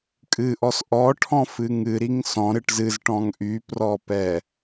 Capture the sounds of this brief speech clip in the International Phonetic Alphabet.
kʼ ɨ ʔ ɔ s ʔ ɔ ʈʰ ɔ̃ f ɨ ŋ ɨ ɾ i ŋ s ɔ̃ ɾ ɨ ʈ z ɨ z ʈ ɔ̃ ŋ ʔ y p r ɔ p ɛ

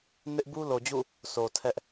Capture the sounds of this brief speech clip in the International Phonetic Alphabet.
n ɪ˦ ʔ b u˦ l o˨ d͡ʑ ṵ˦˨ | sʰ o˨ tʰ ɛ˦ ʔ

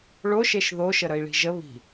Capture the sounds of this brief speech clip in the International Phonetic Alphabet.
ɭ o ʃ e ʃ ð o ʃ ə ɾ ə i̯ ɭ i̤ ʒ ə β i̤

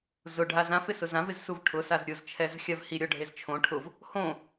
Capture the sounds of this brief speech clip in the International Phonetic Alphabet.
z ʊ ɖʱ a z ã f ɪ s ʊ z ã v ɪ z s u v ʈʰ ʊ s a z ɾʲ ʊ z t͡ʃʰ ɛ z xʲ a v h i ɾʲ ɔ ɖʱ e z t͡ʃʰ õ ʈʰ ʊ v | h õ

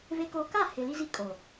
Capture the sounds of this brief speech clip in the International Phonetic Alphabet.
v e˦ k oː˦ k a˦˨ h ɪ˨ l i˦ z i˦ kʼ o˨

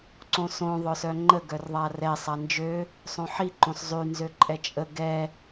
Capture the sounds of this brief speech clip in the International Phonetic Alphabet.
ǀ õ s õ ðˤ œ s œ ŋ͡ǃ ə ɡ œ r ðˤ a r ɛ sˤ a n d͡ʒ ø | sˤ õ ħ i ǃ õ s zˤ y n z ø ǃʼ ɛ t͡ʃʼ ə ɡ ɛ

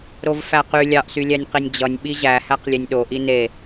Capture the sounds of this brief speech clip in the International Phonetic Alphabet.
ɾ o v f æ q y lʲ ɑ ʔ s y lʲ æ nʲ q i nʲ d͡ʑ ʌ nʲ ɓ i ʑ æ h æ q lʲ e nʲ ɗ o ʔ i n e

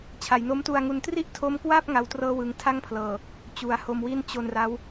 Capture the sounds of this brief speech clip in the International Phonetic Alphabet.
t͡ɕʰ a˩˦ j n o˦˥ m t u˧ a̯ ŋ u˧ n t r i˥˩ ʔ tʰ o˦˥ m k w a˥˩ p̚ ŋ a˦˥ w t r ɤː˥˩ w ɯ˧ ŋ tʰ a˥˩ ŋ pʰ l ɤː˨˩ | t͡ɕ u˩˦ a̯ h o˧ m w i˥˩ n t͡ɕ o˧ n r a˦˥ w

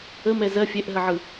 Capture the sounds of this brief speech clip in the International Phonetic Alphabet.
ə m ɛ z ɜ fʲ ɛ ʔ ɦ ə ʕ ɯ

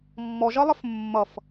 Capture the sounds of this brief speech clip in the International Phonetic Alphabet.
mː ɔ ʒ ʌ lˠ ə f mː ʌ f

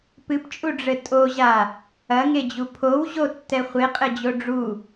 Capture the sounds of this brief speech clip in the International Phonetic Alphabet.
p ɨ p t͡ʃʼ u ɖ͡ʐ ɘ tʼ o ʑ a | ɐ ŋ e d͡ʑ u pʰ o w ʑ o tː ɛ χʷ e qʼ ɘ d͡ʑ o ɖ͡ʐ u

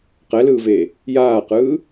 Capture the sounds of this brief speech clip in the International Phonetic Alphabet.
q ɛ l ɯː v eː | j aː q ɯː

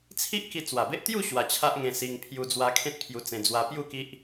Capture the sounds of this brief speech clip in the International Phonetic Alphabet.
t͡sʰ i˦ ʔ k i˧ t͡s w a˨˩ b e˦ ʔ t̪ j u˥˧ ɕ w a˧ t͡ɕʰ a˦ ʔ ŋ ẽ˧ s i˧ ŋ pʰ j u˧ d͡z w a˧ kʰ ẽ˦ t̚ pʰ j u˧ t͡s ẽ˧ d͡z w a˧ p j u˥˧ k i˦ ʔ

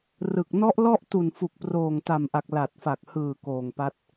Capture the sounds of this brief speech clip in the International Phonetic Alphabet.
r ɯ˨˩ k̚ n ɔ˦˥ ʔ l ɔ˥˩ ʔ t u˨˩ n f u˨˩ k̚ p r oː˨˩ ŋ t a˨˩ m ʔ a˨˩ k̚ l a˨˩ t̚ f a˨˩ k̚ h ɯː˨˩ k oː˨˩ ŋ p a˦˥ t̚

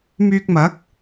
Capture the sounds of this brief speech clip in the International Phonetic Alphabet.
m yː˧ k̚ m ɐ˨˥ k̚

